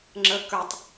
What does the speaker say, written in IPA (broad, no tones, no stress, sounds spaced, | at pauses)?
ŋ͡ǁ ə k ə˞ tˤ